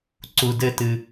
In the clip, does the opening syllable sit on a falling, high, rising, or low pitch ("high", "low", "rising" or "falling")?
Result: low